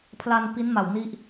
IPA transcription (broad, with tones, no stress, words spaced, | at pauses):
pʰla˧n pi˦˥nma˨˩wni˦˥ʔ